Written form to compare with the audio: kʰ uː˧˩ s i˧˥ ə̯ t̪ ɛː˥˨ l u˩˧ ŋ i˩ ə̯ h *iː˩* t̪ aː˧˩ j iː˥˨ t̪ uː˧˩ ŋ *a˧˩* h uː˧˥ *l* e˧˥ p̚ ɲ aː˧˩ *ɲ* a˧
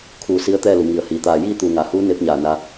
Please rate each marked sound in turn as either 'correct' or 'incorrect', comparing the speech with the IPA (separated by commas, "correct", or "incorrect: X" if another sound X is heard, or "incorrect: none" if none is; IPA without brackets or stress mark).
correct, incorrect: a˩˧, incorrect: n, incorrect: n